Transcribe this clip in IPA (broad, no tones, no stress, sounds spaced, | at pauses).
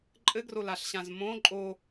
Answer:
ǃʼ ɘ ɡ r o l a ɬ ɕ ã z m õ ǃʼ o